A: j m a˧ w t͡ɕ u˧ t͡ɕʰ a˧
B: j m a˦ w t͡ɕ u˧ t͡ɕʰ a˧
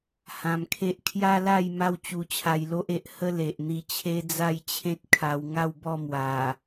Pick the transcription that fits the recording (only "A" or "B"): B